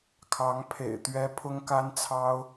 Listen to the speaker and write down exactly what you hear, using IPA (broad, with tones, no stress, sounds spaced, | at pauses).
kʰ ɑ˧˥ ŋ pʰ ḛ˨˩ ɪ̯ t̪ ɥ ɛ˥ pʰ ʊ˥ ŋ k a˥ n t͡sʰ ɑ˥ ʊ̯